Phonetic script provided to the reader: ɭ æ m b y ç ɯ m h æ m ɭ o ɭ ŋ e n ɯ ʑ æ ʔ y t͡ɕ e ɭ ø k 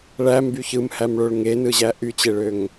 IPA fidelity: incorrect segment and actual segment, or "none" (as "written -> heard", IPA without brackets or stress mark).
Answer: k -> ŋ